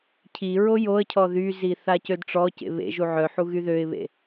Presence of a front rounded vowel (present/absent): present